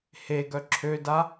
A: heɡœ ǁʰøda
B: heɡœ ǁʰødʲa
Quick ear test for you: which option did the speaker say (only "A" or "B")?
A